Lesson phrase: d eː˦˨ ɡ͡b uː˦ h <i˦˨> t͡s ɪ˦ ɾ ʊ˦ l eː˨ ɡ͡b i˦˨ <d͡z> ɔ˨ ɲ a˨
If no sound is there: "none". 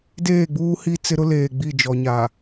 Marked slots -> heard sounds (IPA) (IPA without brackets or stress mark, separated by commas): i˦, d͡ʒ